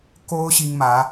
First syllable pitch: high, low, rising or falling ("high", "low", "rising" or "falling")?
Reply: high